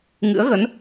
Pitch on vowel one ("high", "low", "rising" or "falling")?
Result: rising